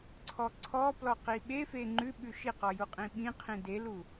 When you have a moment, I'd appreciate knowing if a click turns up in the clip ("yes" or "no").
yes